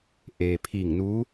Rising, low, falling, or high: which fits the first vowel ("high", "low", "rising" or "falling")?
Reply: low